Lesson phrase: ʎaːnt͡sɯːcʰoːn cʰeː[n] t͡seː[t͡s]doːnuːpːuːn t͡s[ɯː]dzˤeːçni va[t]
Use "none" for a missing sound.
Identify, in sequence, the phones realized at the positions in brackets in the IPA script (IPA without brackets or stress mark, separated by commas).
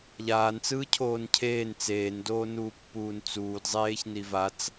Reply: n, n, uː, t͡s